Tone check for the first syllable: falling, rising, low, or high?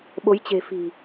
rising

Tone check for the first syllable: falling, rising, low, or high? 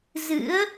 rising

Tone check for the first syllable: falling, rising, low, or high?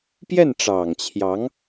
falling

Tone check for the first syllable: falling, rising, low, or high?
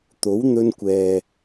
rising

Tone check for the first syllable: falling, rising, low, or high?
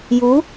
rising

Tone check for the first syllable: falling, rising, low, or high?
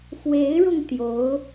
rising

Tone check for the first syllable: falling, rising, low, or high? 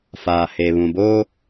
low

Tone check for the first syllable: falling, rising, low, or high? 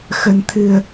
low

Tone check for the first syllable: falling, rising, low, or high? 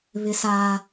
high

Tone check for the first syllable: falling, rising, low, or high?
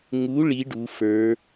rising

